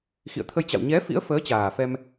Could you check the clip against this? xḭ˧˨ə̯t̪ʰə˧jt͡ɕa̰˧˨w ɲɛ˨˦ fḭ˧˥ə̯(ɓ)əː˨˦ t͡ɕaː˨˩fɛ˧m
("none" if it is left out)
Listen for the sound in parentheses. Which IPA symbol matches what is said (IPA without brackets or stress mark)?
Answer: f